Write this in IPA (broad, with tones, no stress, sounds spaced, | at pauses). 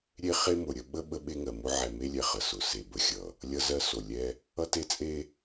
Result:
ɾʲ e˦ χ e˦ m ʊ˨ ɾʲ ə˦ ɓ ə˦ ɓ ə˦ ɓ e˦ ŋ ɜ˨ m ʊ˦ ʕ ɛ˨ m e˦ lʲ ɛ˨ χ ə˨ s ʊ˨ s e˨ b ə˨ xʲ ʌ˨ | lʲ ʌ˦ z ɜ˦ s o˨ lʲ ɛ˦ | ʌ˦ t e˦ t͡sʼ e˦